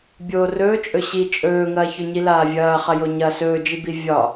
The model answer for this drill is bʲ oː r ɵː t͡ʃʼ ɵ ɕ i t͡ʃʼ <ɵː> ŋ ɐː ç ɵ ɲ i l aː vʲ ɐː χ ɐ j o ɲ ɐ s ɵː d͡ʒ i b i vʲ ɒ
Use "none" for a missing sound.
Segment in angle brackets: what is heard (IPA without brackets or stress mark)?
ɵː